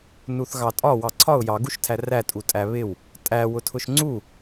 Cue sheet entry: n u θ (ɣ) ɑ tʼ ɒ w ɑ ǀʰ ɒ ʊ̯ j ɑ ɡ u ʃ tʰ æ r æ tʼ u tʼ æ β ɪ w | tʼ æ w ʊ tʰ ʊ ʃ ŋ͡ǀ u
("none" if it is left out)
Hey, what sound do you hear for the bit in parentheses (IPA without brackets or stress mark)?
ɣ